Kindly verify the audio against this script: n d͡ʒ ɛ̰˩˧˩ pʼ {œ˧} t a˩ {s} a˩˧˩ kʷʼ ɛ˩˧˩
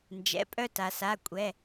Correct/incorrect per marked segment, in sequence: correct, correct

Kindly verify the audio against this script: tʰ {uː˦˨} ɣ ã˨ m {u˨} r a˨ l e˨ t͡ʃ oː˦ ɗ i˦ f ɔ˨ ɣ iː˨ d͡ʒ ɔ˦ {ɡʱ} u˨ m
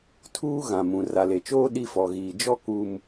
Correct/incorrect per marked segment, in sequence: incorrect, incorrect, incorrect

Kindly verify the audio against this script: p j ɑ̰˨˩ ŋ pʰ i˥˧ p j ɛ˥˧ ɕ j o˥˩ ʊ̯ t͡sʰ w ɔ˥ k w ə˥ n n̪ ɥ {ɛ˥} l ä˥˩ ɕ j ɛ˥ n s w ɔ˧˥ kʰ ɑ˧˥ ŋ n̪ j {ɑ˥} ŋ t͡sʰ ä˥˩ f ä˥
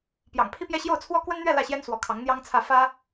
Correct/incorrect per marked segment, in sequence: incorrect, correct

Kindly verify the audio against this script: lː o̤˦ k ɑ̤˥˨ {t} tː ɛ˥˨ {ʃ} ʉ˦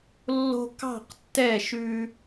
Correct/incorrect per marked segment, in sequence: incorrect, correct

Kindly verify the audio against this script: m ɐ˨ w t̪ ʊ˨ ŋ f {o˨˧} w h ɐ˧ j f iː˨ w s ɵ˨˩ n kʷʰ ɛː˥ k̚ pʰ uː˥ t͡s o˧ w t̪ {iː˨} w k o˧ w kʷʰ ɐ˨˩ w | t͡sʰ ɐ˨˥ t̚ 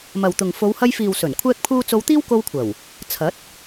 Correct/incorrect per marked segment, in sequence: correct, incorrect

